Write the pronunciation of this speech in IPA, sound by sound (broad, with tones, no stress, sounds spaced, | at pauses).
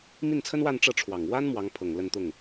m i˥˩ n t͡sʰ ə˥ n w a˥˧ n ʈ͡ʂ ɤ˥˩ ʈ͡ʂʰ w ɑ˨˩ ŋ w a˥ n m w ɑ˧˥ ŋ pʰ ɤ˨˩ ŋ l ə˥˧ n t̪ ʊ˥˩ ŋ